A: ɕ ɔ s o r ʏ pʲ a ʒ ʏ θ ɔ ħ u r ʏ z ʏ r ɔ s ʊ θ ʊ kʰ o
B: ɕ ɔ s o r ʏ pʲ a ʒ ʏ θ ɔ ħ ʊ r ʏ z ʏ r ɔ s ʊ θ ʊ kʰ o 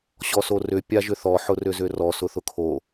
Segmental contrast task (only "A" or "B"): B